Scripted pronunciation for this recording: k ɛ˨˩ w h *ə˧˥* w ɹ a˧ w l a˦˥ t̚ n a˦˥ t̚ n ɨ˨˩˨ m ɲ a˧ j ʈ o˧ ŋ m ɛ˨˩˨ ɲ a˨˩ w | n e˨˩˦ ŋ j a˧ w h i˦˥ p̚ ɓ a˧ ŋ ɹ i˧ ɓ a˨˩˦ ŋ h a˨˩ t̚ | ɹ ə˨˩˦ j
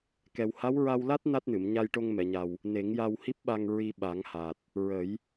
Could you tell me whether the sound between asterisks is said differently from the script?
yes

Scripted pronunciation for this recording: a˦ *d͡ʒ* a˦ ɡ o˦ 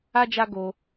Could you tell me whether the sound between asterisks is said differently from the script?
no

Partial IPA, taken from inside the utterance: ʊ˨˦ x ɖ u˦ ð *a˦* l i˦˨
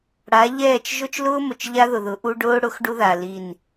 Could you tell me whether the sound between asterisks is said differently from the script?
yes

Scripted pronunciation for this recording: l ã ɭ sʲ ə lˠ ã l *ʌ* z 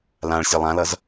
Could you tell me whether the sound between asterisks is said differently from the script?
no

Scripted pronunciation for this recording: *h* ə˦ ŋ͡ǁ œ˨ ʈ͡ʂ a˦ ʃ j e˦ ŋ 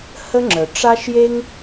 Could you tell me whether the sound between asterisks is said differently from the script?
no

